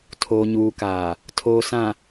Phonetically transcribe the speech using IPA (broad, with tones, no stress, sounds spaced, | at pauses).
tʰ oː˨ ɲ uː˨ k aː˨ | tʰ oː˨ s ã˨